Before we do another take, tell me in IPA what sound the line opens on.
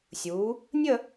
sʲ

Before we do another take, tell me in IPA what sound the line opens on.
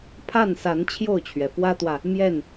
pʰ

